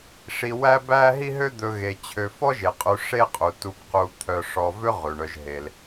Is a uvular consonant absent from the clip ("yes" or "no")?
no